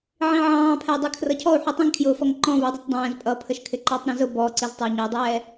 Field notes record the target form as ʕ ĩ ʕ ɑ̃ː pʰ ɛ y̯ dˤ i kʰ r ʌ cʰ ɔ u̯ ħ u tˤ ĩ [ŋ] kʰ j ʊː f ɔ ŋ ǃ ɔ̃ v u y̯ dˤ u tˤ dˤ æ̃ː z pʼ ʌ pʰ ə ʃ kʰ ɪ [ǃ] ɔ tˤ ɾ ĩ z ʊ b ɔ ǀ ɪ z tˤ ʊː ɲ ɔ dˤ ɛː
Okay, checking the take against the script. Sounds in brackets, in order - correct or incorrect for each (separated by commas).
correct, correct